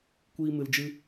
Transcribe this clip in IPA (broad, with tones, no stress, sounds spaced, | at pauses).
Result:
kʷ iː˦ m ɨ˧ l d͡ʒ ɨ˦